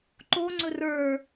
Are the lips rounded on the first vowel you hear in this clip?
yes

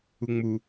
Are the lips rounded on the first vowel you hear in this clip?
yes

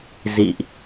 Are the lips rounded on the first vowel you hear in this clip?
no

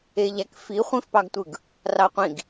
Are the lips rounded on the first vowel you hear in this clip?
no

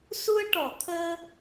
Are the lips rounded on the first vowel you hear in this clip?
yes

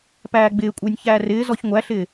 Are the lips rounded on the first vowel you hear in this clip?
no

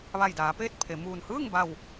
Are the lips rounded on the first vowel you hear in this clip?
no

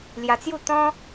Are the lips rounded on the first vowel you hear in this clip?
no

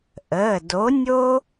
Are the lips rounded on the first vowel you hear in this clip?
no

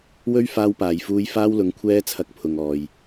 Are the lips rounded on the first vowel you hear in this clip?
yes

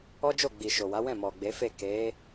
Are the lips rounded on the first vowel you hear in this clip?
yes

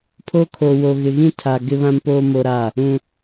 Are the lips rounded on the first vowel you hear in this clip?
yes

